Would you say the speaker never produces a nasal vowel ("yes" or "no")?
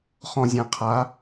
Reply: no